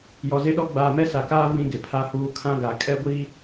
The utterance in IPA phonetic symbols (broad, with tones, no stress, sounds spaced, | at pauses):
j ɔ˨ z e˦ ɗ ɔ˦ ɡ͡b aː˨ m ɛ˦ s a˨ k aː˦ v ĩ˦ ɡ ɪ˨ pʰ a˦ h uː˦ kʰ ã˦ ɡ a˨ kʼ ɛ˦ ɡʷ i˦